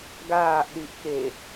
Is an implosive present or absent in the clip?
present